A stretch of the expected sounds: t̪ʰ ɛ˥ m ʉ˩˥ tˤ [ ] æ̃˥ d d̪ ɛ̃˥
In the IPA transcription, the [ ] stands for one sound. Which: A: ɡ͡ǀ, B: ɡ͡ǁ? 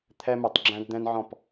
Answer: B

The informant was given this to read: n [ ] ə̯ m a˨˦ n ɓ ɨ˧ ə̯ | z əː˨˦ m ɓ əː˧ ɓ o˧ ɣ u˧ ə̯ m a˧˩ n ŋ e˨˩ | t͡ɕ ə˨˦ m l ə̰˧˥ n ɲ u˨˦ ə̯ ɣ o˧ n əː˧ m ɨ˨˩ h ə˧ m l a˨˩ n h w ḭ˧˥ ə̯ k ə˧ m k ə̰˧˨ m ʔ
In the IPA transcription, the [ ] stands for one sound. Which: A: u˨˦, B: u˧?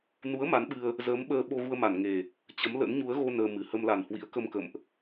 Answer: A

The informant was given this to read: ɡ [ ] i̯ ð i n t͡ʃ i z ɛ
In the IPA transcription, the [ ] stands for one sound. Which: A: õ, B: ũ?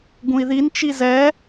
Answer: B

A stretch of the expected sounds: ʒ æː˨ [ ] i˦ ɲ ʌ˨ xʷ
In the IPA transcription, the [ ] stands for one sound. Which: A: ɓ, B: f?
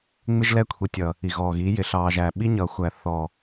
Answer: A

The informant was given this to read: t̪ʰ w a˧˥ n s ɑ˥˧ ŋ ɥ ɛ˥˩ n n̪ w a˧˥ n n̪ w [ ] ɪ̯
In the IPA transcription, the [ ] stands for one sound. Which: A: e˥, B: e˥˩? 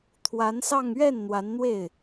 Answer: B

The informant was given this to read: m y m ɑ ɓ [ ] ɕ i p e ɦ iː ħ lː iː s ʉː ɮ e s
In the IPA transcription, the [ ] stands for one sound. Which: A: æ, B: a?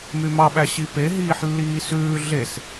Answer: A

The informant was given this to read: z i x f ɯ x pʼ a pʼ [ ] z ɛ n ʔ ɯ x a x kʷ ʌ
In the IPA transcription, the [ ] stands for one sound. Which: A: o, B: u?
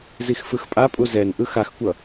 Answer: B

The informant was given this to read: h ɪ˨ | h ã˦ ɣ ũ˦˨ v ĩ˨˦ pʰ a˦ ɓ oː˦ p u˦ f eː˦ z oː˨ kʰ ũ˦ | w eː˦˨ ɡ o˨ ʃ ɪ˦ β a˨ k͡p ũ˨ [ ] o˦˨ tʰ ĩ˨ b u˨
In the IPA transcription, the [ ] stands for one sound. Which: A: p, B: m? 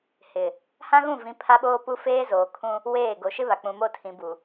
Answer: B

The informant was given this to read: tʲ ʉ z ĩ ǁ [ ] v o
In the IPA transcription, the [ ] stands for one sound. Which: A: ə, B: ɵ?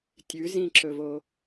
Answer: B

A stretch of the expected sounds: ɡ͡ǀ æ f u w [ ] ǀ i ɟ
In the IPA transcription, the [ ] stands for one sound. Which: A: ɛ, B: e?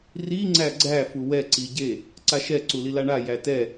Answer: A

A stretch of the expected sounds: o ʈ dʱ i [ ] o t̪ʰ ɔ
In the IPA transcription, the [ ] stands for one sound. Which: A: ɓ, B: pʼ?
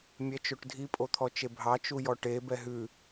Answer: B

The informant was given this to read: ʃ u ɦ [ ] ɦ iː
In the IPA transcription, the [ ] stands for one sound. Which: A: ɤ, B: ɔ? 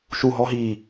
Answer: B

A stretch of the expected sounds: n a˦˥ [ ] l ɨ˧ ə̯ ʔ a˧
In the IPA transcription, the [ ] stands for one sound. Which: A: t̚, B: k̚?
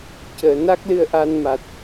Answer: B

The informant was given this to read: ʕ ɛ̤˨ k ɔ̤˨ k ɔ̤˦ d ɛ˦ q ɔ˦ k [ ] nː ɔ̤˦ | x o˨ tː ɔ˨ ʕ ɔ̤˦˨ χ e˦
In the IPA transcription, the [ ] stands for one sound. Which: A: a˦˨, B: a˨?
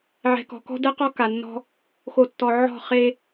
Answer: B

